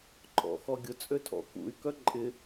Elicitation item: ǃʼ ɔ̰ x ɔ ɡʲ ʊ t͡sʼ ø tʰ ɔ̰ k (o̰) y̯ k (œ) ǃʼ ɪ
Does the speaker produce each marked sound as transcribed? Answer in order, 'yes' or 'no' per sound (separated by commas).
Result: no, yes